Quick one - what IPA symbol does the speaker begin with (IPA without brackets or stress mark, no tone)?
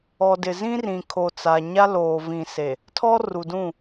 ɔ